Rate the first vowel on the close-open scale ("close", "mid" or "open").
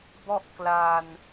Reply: mid